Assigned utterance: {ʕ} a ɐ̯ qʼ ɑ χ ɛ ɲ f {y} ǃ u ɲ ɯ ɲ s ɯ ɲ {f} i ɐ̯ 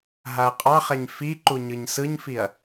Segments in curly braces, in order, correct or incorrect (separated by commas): incorrect, incorrect, correct